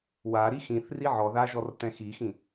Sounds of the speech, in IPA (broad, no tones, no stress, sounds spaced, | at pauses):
w a ɾ i x ĩ θ r i ʕ ɔ ð a ʒ ɔ r t ɛ̃ x i x ĩ